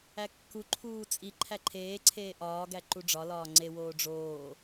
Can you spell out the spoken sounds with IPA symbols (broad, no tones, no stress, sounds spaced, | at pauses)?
æ kː u ǃʰ uː t͡sʼ i ǃʰ æ ǃʰ eː ǀʰ eː ʔ ɒː ɡ æ ǃ u ɖ͡ʐ ɒ l ɒː ŋ͡ǀ e w oː ɖ͡ʐ oː